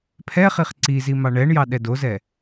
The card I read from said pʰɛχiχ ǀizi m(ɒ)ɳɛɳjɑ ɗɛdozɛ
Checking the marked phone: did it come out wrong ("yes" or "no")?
yes